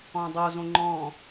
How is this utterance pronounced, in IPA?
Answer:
ɔ̃dˤozõ ŋ͡ǃɔ̃

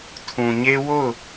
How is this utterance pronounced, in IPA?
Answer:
tʰũ˨ɲe˦ wo˦˨ʊ̯

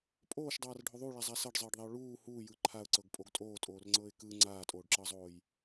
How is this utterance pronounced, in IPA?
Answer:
pʼoːʃdˤaːrɖʱo ðˤuɭazˤa sɤɖzˤɤːɖðˤiʊ̯ ɭuː huːjɯ ǃʰaʊ̯ǀɤɡpʼoɡ tʼoːtʼoːrŋ͡ǀɤːɪ̯ kɯ ŋ͡ǀaːtʼoːɖǁɤzˤoːj

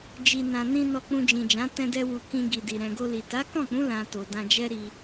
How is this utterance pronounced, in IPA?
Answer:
d͡ʒi˨nã˨nĩ˧ nɔ˨ k͡pũ˧d͡ʒĩ˨d͡ʒã˨˦ tɛ̃˧dɛ˧wu˨ kĩ˧ ɡi˨di˨ ɾɛ̃˨ɡo˧li˨ ta˨˦kɔ̃˦˨k͡pũ˨˦ lã˧to˨dã˧d͡ʒɛ˦ ɾi˧

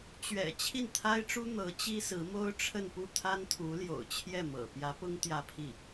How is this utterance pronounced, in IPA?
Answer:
t͡ɕɥɛ̰˨˩ t͡ɕʰi˥˩nt̪ʰa˥ɪ̯ʈ͡ʂu˥ n̪ɤ˧˥t͡ɕi˥sɹ̩˧˥ mo˥ʊ̯ʈ͡ʂʰə˥˧npu˥˩ t̪ʰa˥nt̪ʰu˧˥ljo̰˨˩ʊ̯t͡ɕʰjɛ˥˩ mɤ̰˨˩ pjä˧˥pʊ˥ŋ t̪jä˥˧pʰi˥˩

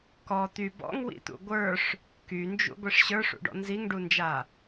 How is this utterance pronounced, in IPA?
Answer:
kɔ t̪y bɔ̰ŋwḭt̪ṵ ɡʷə˞ʂ | kynd͡ʒṵɡʷiʂ ɕə˞ʂṵɖɔ̰ nziŋɖund͡ʒa

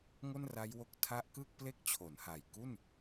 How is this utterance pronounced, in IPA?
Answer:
ŋo˥˩nra˦˥jwo˦˥k̚ tʰa˦˥ʔkɯ˥˩k̚ple˥˩k̚ t͡ɕʰo˩˦nha˨˩j ku˥˩n

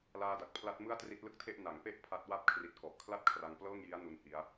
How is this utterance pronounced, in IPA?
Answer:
laː˧da˨˩k̚pʰla˦˥t̚ mɯ˥˩a̯tri˦˥t̚lɯ˥˩k̚tʰe˥˩ʔ na˩˦ŋpe˥˩ʔ pʰa˦˥t̚ wa˦˥p̚kʰri˨˩t̚ kɔ˨˩ʔkʰla˥˩t̚kʰra˧ŋ plɤː˥˩ŋji˦˥a̯ nu˦˥nhi˦˥a̯

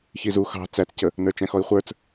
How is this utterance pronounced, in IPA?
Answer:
çizu xɑ̤ t͡sæt͡scə | nə˞t͡ʃæ̃xɔi̯χʷə˞t͡s

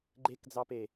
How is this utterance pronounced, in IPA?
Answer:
ɡ͡ǃekd͡zɑpe

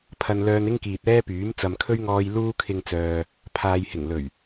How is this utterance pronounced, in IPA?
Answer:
pʰɐ˧nlœː˧nɪ˥ŋkiː˨t̚ ɛː˥pyː˨˥m t͡sɐ˨mkʰɵ˥ɥŋɔː˧j luː˥kʰɪ˧ŋt͡sœː˨ | pʰaː˨jhɪ˨˩ŋ lɵ˨˩ɥ

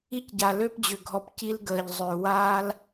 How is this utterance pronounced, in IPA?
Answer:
i˦cɟa˨lø˦pd͡ʑʏ˨ ɡʱɔ˨pci˧l ɡəː˨ʎ zˤʏː˨waː˦l

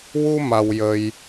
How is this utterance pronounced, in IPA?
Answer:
wu˧ ma˧wjə˧j

